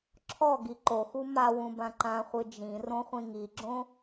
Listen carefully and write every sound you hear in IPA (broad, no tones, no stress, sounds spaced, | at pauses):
ǁʰ ɔ ɡ i ǃ o x u m a w ũ b ã ǃ ã χʷ ɨ d͡ʒ ĩ r õ χʷ ĩ ŋ i ɡ͡ǁ õ